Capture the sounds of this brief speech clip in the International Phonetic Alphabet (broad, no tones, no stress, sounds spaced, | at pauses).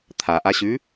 t̪ʰ a ʔ a ɕ ʉ